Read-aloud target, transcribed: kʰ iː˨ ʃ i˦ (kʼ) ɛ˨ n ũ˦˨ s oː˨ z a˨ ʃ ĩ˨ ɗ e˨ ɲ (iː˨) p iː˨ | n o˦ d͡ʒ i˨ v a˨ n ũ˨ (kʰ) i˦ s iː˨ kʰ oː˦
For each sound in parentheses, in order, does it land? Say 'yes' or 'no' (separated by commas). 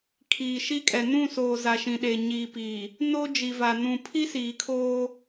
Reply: yes, yes, no